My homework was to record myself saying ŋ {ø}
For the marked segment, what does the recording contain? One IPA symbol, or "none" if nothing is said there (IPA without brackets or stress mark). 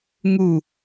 u